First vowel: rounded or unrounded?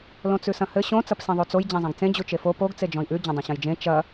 rounded